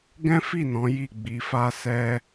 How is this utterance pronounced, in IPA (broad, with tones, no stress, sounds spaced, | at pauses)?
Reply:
ɡ ɛ̃˦ f i˦˨ n ɔ̃˨˦ j i˦˨ ɡ͡b i˧ f a˦ s ɛ˦